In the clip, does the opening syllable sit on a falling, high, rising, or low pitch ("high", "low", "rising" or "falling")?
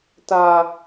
high